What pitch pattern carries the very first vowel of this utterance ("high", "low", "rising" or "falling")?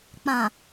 low